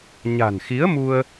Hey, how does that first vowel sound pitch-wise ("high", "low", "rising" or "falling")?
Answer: low